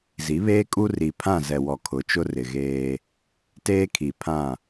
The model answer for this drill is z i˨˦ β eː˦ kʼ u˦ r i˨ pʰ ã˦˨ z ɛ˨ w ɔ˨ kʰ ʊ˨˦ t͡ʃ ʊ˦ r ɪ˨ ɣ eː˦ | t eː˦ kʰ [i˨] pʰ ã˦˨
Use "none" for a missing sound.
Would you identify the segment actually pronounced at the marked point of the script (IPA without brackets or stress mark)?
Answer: i˨